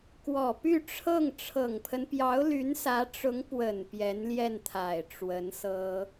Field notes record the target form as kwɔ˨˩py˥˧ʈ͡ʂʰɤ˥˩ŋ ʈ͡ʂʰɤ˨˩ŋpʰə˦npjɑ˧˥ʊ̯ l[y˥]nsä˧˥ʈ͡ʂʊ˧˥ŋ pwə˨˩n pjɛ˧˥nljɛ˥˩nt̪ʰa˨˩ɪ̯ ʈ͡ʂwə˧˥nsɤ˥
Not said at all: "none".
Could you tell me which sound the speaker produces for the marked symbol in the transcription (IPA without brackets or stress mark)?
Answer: y˧˥